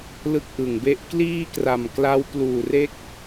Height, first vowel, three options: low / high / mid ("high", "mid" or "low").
high